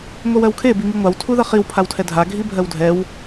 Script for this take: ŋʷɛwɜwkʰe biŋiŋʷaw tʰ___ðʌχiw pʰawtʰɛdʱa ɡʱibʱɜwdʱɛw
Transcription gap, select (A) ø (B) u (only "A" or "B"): B